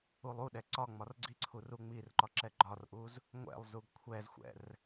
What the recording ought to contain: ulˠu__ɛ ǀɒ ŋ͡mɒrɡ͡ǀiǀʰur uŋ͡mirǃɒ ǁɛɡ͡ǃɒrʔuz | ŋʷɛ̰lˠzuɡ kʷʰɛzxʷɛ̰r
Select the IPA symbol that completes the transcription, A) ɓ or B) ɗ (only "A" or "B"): B